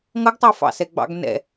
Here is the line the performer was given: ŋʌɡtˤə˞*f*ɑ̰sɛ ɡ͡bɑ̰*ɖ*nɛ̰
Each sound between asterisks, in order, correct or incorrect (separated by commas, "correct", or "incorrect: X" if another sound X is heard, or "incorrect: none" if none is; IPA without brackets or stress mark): correct, incorrect: ɡ